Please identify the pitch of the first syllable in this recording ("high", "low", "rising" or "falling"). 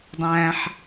low